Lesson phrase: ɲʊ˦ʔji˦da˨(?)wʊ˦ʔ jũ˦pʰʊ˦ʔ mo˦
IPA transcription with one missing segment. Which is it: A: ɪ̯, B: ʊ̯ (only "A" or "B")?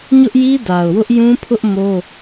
B